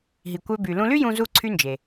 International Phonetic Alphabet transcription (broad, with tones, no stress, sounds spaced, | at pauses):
ɦ i˩ kʷ ø˧ b y˩ l ũ˧ l y˥ j ũ˧ z u˧ ǀʰ y˧ n d͡ʒ e˩